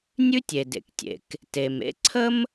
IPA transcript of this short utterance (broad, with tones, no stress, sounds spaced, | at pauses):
nʲ ʉ˥ tʲ e˩ d ḛ˩ k tʲ ḛ˩ k | t e˩ m ḛ˥ ǀʰ ə˥ m